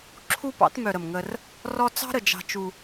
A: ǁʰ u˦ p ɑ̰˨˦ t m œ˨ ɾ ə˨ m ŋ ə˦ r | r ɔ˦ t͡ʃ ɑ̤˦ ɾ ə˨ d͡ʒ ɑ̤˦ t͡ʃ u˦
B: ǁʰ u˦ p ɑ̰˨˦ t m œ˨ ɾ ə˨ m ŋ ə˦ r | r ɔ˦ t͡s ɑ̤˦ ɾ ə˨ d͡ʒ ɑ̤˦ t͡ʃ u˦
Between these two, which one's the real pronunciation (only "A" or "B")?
B